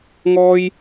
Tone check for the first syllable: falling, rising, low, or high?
high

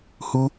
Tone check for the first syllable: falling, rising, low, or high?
high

